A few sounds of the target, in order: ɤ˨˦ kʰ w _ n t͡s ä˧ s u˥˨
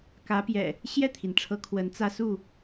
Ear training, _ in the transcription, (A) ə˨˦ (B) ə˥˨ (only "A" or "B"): A